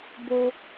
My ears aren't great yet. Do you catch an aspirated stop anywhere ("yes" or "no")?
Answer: no